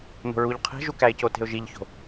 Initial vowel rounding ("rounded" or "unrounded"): rounded